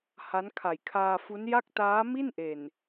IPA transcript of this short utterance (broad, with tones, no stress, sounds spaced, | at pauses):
h a˦˥ n kʰ a˨˩ j kʰ aː˧ f u˦˥ n j a˥˩ k̚ t aː˦˥ m i˥˩ n ʔ e˨˩ n